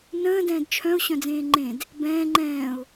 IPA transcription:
n ə̃ː d ɛ̃ː d t͡ʃʰ œ̃ ʊ̯ ɕ œ̃ d͡z ẽː ŋ͡ǃ ẽ d | b ɛ̃ː ŋ͡ǃ ɛ̃ː ʊ̯

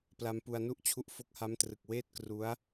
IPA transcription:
p l a˧ m p u˧ a̯ n u˥˩ ʔ t͡ɕʰ u˦˥ ʔ f o˦˥ k̚ h a˦˥ m t r ɯ˨˩ k̚ w eː˥˩ t̚ k r u˦˥ a̯

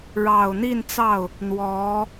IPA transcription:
ɻ ɑ˨˩ ʊ̯ n̪ i˥˧ n t͡s ɑ˥˩ ʊ̯ | n̪ w ɔ˧˥

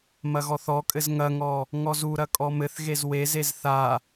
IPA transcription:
m ɐ ɣ ɔ θ ɔ kʼ ɘ z ŋ ɐ ŋ ɔ | ŋ ɔ z u ɾ ɐ kʼ ɔ m ɘ θ ɣ e z w e z e z θ a

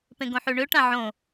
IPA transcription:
p ẽ ɡ õ ħ y ɳ ø ʈ ã ʕ õ

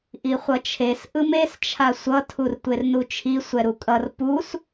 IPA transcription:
ʔ i χʷ ʌ t͡ʃʰ e s ʔ ɯ m e s t͡ʃʰ a sʷ ʌ tʰ u r tʷ e r n u t͡ʃʰ i sʷ ɛ ɾ u kʼ ʌ r p u s

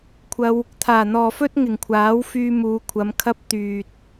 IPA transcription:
kʷʰ ɐ˧ w | t̪ʰ aː˨˩ n̪ ɔː˨ f ɵ˥ t̚ ŋ ɪ˨˩ ŋ kʷʰ aː˨˥ w f yː˧ m uː˨˧ kʷʰ ɐ˨˧ m kʰ ɐ˥ p̚ t̪ yː˨ t̚

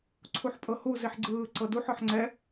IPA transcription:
ǀʰ u ħ pʼ ɤ h u z i ħ ɡ͡ǀ ɯː ǀ ɤ d u ħ ɔ ħ ŋ͡ǀ ɛ

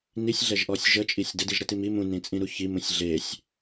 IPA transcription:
n i sʲ ɮ ɛ ʒ ʔ ɔ sʲ ʒ ə t͡ʃʼ i sʲ d ə d i ʒ ɾ ə t i m i m ũ n ĩ t͡sʼ ĩ ɾ u ç i m ũ sʲ ɮ e sʲ

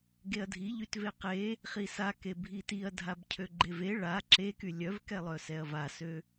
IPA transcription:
ɡ e ɐ̯ dʱ i ʎ y t v e q e | χ i s a k e bʱ i t i ɐ̯ dʱ a b cʰ ø ɡ͡ǃ e v e ɭ a ǁ e k y lʲ œ v k ɛ lˠ œ s ɛ ɐ̯ v a s ø

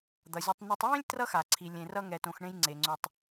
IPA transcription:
d̪ ʌ˩ zʲ ʌ˨ tˤ n ʌ˨ tˤ j ẽ˦ lʲ t r ʌ˦ x a˩ ǀʰ i˩ lʲ ẽ˩ r ʌ˨ ŋ ɛ˩ t õ˩ x ɳ ẽ˨ j ŋ͡ǀ e˩ ŋ͡ǀ o˩ tˤ

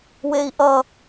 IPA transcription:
w e i̯ ʔ ʌ

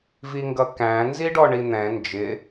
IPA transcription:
v i ŋ ɡ ʌ k æ̃ n z i ɖ ɔ ɳ i n̪ ɛ̃ n d͡ʒ ɪ

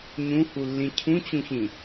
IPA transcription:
ɲ ũ h u lː ĩ cʰ ũ t͡ɕ ũ ç ĩ

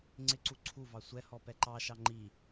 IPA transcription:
ŋ͡ǀ ɪ ǀ u ǀʰ u v ɑ sʷ ɛ h ɔ p ɛ ǃ ɑ ʃ ɑ ŋ͡ǃ i

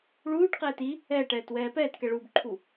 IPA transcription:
ɭ uː ʈ q ɛː t i | ɛː ʈ ɛː t w ɛː p ɛː t k ɛ ɭ uː b ǃʰ u

